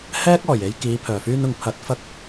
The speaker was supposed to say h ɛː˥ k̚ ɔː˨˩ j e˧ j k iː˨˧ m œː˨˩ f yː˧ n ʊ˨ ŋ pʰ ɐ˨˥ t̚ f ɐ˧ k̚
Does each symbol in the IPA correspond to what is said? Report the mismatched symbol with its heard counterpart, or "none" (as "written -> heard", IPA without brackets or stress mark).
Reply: m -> pʰ